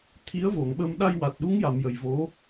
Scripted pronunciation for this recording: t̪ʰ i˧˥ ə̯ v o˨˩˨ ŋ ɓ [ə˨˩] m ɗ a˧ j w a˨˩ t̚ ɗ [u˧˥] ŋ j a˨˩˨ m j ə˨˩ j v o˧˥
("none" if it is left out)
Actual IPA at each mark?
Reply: ə˧, u˧˥

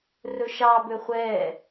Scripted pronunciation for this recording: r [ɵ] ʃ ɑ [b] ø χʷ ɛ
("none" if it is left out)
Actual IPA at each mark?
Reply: ɵ, b

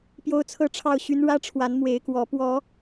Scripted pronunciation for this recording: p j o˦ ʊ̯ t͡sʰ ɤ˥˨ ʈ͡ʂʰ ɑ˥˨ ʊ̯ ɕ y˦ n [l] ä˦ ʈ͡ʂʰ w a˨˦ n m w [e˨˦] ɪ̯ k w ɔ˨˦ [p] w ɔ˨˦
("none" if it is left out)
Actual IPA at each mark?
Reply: ɻ, e˨˦, p

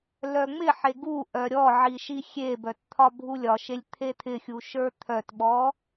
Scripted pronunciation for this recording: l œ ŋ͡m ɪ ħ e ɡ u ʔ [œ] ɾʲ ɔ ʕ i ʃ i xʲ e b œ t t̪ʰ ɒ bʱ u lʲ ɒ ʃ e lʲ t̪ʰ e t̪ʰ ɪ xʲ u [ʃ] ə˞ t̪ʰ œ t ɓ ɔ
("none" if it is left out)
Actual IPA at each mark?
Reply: œ, ʃ

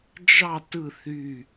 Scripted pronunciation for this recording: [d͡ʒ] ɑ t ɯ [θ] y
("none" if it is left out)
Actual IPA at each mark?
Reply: d͡ʒ, θ

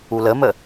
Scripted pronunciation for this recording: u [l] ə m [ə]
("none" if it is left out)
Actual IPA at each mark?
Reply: l, ə

